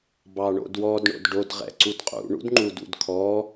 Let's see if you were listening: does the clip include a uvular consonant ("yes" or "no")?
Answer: yes